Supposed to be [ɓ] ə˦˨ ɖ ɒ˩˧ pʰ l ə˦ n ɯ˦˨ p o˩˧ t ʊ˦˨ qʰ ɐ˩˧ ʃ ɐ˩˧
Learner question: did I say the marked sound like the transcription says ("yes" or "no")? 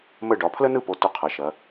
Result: no